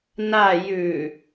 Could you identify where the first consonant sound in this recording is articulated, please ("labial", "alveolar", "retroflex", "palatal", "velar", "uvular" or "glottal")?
alveolar